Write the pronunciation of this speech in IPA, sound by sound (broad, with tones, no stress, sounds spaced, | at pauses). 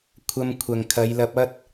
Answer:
kʷʰ ɐ˧ m kʷʰ ɐ˨ ŋ kʰ ɐ˨˧ j l ɐ˧ p̚ ɐ˥ t̚